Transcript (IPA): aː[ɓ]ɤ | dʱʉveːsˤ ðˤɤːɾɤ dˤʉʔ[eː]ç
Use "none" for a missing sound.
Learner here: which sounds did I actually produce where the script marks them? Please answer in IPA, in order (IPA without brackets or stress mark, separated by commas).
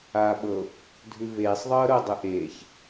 ɓ, eː